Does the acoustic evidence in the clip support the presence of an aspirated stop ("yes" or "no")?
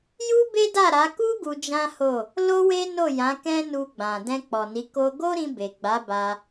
no